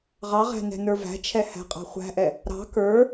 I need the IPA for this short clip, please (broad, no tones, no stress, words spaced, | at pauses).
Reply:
ʁɑʁæ̤ nɛ̤nə˞væ̤t͡ʃʰɛ hæ̤qʼɑ̤χʷæ̤ʔɛ | ɾɑ̤ kə˞